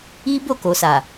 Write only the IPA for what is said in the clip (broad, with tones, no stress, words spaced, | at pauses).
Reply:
i˦ bo˦˨ko˨sa˨